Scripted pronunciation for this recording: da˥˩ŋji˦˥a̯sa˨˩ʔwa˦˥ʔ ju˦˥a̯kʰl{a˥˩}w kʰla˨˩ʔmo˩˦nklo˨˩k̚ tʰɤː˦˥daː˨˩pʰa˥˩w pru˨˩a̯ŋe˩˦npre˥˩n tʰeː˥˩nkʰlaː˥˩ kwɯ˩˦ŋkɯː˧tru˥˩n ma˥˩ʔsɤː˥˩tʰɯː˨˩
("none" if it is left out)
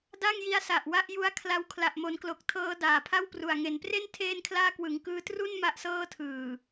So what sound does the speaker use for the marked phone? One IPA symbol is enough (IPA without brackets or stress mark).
a˦˥